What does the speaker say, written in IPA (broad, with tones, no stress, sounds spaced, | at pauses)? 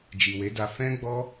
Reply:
d͡ʒ i˨ w e˨˦ d a˧ f ɛ̃˦ ɡ͡b ɔ˦